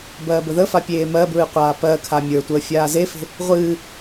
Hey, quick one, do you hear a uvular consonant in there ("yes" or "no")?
yes